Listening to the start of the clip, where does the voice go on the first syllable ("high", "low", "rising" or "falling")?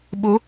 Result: rising